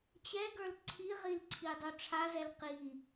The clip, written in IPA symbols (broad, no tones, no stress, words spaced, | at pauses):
t͡ɕɛɡə˞l ǀʰiʁilǀʰidˤo ʈ͡ʂʰazɛl qi